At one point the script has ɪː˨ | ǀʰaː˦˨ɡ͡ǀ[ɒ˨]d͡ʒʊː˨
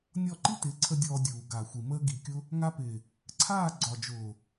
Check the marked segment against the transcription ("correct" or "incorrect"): correct